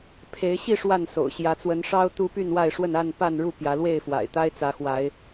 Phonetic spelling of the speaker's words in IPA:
pʰ e˨˦ ɪ̯ ɕ i˥˨ ʂ w a˥˨ n s o̰˨˩ ʊ̯ ɕ j ä˨˦ t͡s w ə˨˦ n ʂ ɑ˦ ʊ̯ t̪ u˦ p y˥˨ n w a˥˨ ɪ̯ ʂ w ə˥˨ n a˥˨ n p a˥˨ n ɻ u˥˨ p j ä˨˦ l w e˥˨ ɪ̯ f w a̰˨˩ ɪ̯ t̪ a˦ ɪ̯ t͡s ä˨˦ x w a˨˦ ɪ̯

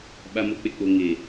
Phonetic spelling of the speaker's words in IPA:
ɓ a˨ m o˨ k͡p e˨ k͡p o˨ ŋ e˨

